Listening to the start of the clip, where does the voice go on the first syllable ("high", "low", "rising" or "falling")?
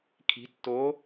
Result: rising